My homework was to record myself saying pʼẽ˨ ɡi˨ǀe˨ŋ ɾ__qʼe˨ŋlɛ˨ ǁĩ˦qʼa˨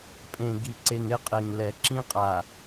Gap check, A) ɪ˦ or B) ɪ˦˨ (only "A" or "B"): A